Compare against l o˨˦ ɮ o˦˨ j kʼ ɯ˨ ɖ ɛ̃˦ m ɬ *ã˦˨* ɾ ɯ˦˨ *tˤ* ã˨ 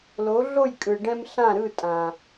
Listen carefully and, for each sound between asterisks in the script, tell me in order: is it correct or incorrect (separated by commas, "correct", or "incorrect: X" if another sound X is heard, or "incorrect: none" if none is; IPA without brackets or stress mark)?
correct, incorrect: tʼ